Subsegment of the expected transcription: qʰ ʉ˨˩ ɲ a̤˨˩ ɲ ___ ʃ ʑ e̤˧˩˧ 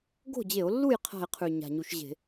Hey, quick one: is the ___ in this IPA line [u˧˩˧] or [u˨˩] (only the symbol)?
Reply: u˧˩˧